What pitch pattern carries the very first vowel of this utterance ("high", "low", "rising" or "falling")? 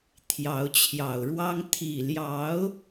rising